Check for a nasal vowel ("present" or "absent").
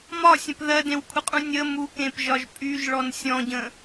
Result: present